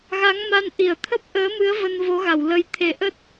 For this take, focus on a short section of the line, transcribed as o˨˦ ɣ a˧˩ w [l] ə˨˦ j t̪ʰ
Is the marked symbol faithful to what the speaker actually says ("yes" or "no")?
yes